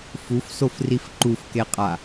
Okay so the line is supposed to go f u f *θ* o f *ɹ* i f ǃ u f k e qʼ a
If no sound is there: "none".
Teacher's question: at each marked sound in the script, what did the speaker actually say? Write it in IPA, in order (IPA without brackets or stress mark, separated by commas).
s, r